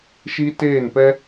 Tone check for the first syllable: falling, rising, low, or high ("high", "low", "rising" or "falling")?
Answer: high